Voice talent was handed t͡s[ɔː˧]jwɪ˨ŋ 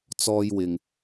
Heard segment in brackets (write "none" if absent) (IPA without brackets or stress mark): ɔː˧